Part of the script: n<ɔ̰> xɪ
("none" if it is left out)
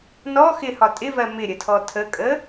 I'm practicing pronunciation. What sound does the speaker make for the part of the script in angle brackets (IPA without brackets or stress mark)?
ɔ